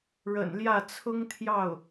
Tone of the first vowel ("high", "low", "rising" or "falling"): low